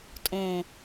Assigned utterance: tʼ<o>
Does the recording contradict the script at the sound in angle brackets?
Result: yes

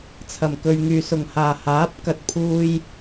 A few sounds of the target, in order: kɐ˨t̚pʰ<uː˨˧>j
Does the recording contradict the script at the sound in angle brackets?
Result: yes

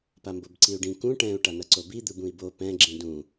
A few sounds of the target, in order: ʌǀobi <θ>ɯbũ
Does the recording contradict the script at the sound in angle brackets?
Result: yes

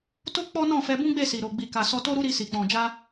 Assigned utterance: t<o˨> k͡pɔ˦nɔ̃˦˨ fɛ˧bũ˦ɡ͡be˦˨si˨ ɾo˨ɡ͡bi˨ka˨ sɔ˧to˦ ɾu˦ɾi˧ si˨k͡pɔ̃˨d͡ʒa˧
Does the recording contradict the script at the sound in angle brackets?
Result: yes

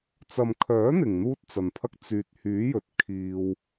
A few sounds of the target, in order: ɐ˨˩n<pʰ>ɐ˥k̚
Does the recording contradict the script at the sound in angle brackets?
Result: no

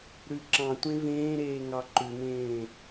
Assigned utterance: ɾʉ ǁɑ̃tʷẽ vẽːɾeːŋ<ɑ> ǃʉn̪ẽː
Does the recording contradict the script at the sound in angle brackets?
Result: no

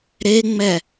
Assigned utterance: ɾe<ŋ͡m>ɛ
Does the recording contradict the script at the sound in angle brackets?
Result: no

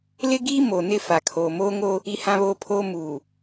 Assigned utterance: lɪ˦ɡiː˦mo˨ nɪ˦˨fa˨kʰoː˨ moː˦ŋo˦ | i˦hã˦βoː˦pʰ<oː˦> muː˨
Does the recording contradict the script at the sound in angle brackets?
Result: no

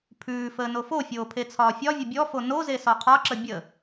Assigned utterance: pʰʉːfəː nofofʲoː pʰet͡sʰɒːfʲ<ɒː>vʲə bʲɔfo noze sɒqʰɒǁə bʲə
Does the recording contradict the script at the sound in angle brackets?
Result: yes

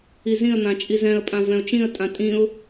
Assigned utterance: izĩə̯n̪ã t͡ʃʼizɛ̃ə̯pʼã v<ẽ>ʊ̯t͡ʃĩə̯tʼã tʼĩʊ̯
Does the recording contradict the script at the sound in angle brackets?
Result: yes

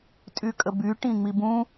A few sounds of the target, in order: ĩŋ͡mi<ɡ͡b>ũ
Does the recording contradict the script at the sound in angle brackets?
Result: yes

